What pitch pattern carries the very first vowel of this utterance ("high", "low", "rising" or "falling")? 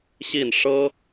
falling